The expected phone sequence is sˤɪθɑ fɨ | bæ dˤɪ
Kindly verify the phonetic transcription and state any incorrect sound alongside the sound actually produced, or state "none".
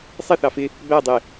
ɨ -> ɪ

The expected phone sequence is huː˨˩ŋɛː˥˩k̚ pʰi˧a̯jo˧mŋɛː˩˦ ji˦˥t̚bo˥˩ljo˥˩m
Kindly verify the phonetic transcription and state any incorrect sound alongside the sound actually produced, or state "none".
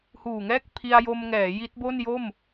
l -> n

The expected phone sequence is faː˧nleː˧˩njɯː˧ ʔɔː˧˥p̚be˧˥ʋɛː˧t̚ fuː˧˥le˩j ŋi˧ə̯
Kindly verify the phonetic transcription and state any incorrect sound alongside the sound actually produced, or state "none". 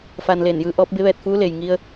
none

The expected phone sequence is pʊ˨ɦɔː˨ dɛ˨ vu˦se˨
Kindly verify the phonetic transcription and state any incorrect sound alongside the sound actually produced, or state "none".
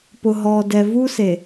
none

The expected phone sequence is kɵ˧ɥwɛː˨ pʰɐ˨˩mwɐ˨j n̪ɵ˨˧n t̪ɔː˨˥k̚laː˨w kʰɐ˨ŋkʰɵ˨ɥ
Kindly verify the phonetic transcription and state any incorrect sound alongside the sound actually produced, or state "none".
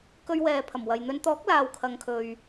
none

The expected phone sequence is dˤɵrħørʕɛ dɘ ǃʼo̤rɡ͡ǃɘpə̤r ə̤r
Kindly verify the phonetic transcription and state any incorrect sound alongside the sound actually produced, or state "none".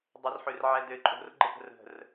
none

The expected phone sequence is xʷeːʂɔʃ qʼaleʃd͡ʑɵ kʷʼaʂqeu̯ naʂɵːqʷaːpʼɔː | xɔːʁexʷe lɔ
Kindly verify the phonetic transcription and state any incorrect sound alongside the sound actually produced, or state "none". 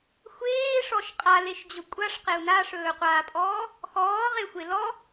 none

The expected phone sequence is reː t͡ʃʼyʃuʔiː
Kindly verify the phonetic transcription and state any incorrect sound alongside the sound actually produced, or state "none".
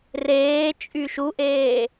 iː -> eː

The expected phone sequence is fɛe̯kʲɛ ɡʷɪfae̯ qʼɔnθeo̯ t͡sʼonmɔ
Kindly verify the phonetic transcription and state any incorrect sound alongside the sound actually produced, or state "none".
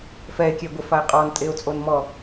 θ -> tʼ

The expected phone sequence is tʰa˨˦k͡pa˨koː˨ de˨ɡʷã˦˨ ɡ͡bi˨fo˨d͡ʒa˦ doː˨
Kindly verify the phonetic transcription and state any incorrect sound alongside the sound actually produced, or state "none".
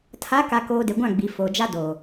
k͡p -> k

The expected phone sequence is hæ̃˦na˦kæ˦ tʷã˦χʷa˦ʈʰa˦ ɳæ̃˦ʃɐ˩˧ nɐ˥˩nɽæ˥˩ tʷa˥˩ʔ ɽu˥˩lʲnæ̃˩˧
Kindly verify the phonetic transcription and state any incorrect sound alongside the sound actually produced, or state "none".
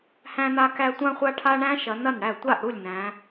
none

